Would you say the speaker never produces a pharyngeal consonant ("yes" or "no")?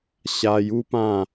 yes